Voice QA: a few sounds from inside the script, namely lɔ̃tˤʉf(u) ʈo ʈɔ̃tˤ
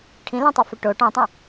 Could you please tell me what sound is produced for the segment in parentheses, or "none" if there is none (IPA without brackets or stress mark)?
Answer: ø